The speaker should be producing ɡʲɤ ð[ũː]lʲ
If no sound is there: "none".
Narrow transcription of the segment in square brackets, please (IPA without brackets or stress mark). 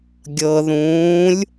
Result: ũː